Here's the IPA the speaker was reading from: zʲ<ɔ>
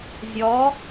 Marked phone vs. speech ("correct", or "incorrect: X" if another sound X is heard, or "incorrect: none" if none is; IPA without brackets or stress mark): correct